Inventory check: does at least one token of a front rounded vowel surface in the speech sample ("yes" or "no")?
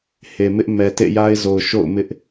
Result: no